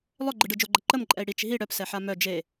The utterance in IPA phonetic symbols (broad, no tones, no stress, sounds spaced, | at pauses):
lˠ œ ɡ͡ǃ ɯ ɖ ɯ d͡ʒ o ɡ͡ǃ ə ǃ ə m ǃʼ ɛ i̯ ɽ i t͡ʃ ɦ i ɽ œ p s ɛ ħ a m œ d͡ʒ e